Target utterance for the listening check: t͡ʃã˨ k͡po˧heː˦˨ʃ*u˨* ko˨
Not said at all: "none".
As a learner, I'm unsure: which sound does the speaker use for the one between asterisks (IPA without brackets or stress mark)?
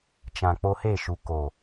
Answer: u˨